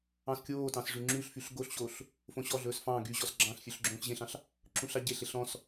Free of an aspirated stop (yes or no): yes